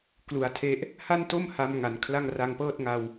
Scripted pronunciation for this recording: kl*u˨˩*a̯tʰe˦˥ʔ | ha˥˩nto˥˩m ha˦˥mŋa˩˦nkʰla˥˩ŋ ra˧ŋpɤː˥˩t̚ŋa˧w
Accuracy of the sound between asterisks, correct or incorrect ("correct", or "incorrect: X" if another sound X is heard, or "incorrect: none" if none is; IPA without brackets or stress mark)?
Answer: correct